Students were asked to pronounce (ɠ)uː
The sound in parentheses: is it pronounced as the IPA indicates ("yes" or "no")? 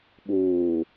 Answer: no